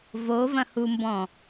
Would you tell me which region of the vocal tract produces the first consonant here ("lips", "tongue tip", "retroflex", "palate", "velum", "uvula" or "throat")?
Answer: lips